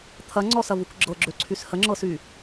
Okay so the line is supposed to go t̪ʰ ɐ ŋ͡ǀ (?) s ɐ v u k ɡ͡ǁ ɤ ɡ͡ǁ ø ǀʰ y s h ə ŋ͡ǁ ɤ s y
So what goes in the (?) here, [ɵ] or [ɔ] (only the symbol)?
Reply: ɔ